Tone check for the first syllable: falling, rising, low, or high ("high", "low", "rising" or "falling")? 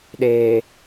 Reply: low